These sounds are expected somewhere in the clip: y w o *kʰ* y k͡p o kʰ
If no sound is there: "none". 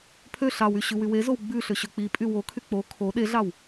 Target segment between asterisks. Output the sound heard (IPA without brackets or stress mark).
kʰ